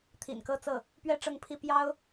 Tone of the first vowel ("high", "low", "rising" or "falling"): low